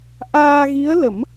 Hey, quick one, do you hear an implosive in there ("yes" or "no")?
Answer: no